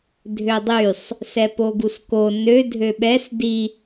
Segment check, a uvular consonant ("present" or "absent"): absent